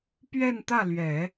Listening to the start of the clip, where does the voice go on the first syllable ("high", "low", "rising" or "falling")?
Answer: falling